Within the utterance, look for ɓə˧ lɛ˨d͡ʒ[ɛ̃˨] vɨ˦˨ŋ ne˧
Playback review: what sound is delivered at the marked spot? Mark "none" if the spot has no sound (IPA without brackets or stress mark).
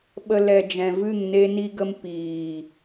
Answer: ɛ̃˨